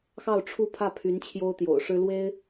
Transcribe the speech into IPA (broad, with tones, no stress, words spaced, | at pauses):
xɑ˥˧ʊ̯ʈ͡ʂʰu˥˧ pʰä˥˩pʰy˧˥n t͡ɕʰjo˥ʊ̯t̪jo̰˨˩ʊ̯ʂɻ̩˥ lwe˥ɪ̯